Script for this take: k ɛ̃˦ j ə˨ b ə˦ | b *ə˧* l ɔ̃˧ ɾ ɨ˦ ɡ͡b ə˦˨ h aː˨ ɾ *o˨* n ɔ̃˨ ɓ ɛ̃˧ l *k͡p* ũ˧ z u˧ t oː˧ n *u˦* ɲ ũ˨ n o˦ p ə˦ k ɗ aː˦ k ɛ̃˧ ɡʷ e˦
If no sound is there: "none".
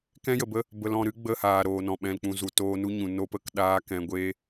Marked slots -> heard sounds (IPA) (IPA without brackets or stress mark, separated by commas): ə˧, oː˨, k͡p, u˦